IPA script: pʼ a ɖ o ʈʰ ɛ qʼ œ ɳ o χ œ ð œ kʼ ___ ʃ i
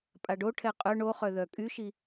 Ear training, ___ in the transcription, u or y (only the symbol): y